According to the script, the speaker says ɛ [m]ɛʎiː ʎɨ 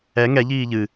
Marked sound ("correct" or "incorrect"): incorrect